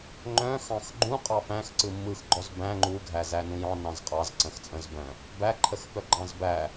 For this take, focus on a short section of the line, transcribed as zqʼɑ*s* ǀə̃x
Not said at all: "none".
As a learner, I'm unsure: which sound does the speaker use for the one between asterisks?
z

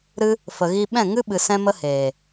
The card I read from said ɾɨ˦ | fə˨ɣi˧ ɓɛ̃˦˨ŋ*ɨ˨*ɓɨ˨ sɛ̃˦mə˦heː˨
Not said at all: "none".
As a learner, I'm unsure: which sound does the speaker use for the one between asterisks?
ɨ˦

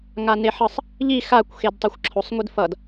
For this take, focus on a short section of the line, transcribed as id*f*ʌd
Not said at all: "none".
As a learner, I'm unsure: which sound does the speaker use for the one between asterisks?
f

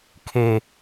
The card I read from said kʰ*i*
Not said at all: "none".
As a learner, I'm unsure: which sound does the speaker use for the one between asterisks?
e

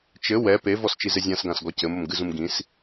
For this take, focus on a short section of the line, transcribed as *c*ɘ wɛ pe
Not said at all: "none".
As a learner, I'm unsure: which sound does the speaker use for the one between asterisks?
t͡ʃ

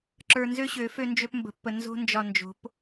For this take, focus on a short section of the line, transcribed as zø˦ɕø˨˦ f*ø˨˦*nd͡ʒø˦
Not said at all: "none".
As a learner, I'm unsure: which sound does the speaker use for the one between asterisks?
ø˦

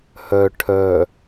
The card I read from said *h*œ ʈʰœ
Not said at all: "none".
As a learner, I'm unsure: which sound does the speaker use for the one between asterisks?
h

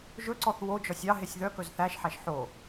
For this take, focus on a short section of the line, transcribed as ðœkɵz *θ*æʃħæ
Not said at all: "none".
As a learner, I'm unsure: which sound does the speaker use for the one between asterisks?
θ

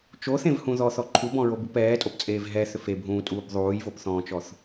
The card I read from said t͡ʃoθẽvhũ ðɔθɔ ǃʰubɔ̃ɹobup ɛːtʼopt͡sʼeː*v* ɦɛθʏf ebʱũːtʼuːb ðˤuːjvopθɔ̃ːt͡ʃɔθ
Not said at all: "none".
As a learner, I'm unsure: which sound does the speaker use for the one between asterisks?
v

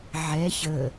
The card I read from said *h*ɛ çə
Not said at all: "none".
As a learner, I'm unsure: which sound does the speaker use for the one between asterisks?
ʕ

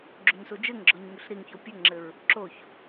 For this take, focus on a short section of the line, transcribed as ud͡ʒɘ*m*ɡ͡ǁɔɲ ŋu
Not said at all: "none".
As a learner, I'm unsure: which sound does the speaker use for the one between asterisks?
ŋ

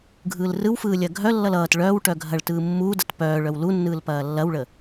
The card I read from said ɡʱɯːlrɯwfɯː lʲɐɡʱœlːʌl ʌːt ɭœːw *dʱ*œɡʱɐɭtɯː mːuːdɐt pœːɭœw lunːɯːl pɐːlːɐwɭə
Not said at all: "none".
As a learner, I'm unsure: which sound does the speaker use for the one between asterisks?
ʈ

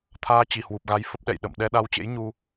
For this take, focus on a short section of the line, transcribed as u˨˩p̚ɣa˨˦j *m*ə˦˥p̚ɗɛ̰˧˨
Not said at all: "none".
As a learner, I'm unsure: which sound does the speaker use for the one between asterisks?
f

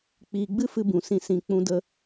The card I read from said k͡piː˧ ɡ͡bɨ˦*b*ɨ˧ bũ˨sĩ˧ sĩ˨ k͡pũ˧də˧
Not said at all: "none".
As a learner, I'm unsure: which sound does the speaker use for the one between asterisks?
f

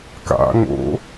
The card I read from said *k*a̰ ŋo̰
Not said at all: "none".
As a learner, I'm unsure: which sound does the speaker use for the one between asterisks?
k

